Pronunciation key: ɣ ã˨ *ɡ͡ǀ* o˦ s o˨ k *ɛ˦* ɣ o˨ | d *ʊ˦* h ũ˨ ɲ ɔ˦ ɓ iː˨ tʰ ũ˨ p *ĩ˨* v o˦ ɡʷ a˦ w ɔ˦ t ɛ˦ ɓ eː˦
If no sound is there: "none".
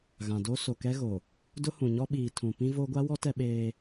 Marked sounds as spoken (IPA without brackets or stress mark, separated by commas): d, ɛ˦, ʊ˦, ĩ˦